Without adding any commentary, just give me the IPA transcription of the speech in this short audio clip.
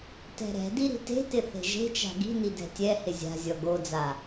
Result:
t ɛ̤ ɾ ɛ̤ d i ɾ i̤ t e̤ t ɪ θ e̤ ʒ e̤ t͡ʃ a̤ ɡ i̤ n i d ɛ̤ tʲ ɛ h ɪ zʲ a̤ zʲ ɔ ɡ o d͡z a

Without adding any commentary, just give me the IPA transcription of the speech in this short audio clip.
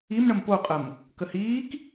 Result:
i m ɳ ə m p o qʼ ə m | k ə h iː k

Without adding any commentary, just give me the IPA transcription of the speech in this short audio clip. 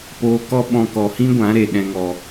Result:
p oː˧ k ɔ˦ ɓ ɔ̃˧ k ɔ˨ h ĩ˦ ɡʷ ã˨˦ ɾ e˧ ɗ ɛ̃˦ ŋ ɔ˧

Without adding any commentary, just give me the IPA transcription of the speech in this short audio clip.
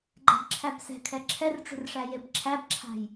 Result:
ɡ͡ǃ ɛ̤ b ǁʰ æ b s ɛ̤ kʰ ɛ ǁʰ ɛ r ʈ͡ʂ ṳ r ʂ æ j e b ǁʰ æ b ǁʰ a̤ j

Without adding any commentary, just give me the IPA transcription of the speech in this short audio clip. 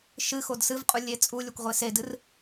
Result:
ʃ ɨ x o d s ɨ v qʼ u lʲ e t͡sʼ u lʲ o kʷ ʁʷ e s e d ɨ r

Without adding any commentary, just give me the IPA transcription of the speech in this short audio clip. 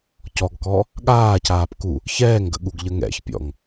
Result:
c ɔ ɡ k ɔ | ɠ aː c aː p k u | ç ɛː ŋ ɡ ə̰ ɠ u ɡ ʎ ə ŋ ɛ̰ ç pʲ ɔ̰ ŋ

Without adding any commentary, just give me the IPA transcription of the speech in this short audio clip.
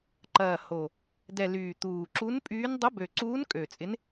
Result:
ǃ ɐː˨˩ h o˨˩ | d ɛ˨˩ l yː˨˩ t̪ uː˨˩ ǁ u˧˥ n pʼ yː˧˥ n dˤ ʊ˧˥ b ø˨˩ ǀ uː˧˥ n kʼ ø˨˩ t͡sʼ ɪ˧˥ n

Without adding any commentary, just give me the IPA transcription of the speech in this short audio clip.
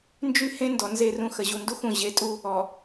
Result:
n d͡ʒ y˦ h ẽ˦ n d ɔ˨ n z e˦˨ r ũ˦ x ə˨ ʑ u˨ n d u˦ x ũ˨ ʑ e˨ tʼ u˦ | ɔ˨

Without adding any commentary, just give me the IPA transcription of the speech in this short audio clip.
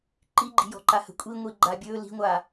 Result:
ǃ i ɡ͡ǃ i̤ j ɔ̤ ǃ a h ə̤ kʷʼ i ŋʷ i ɡ͡ǃ a bʲ ɵ l i̤ ŋʷ a

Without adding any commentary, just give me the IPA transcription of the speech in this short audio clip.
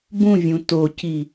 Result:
b ũ vʲ ũ t o c i

